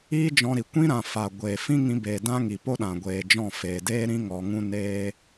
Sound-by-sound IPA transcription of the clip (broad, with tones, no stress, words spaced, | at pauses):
iː˦d͡ʒɔ̃˧ɾi˨ kʷĩ˦ɾã˨fa˨ ɡʷeː˨ fĩ˦ŋĩ˧ beː˨ dã˦ŋi˨po˦ ɗã˨ɡʷeː˨d͡ʒɔ̃˦˨ feː˨deː˦ɾĩ˦ ŋɔ˧ŋũ˦ neː˦